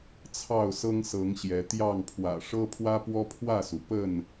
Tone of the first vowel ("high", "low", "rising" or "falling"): falling